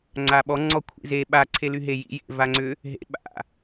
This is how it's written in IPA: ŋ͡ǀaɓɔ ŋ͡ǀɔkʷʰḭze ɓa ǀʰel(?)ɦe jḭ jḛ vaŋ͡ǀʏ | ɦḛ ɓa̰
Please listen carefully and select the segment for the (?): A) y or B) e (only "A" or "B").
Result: A